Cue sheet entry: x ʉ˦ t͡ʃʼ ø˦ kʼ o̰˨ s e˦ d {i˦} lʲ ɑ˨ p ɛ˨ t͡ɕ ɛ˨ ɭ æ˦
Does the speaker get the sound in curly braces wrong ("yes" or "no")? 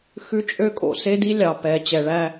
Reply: no